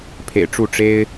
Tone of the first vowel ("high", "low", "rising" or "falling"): low